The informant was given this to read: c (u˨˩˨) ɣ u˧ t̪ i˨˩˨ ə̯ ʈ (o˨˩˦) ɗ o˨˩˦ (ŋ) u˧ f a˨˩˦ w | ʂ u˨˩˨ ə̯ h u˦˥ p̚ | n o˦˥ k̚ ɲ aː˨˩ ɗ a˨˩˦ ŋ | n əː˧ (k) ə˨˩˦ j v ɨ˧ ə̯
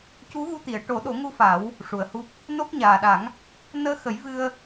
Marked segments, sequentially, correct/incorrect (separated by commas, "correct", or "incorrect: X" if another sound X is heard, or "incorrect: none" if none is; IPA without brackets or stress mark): incorrect: u˧˥, correct, correct, incorrect: x